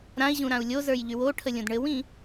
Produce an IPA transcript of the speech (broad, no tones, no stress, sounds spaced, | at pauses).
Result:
ɾ ã i̯ ʑ ũ ɾ ã u̯ lʲ o z ə˞ j ʎ y w o ʈʰ ə lʲ õ d ɳ ɘ w ĩ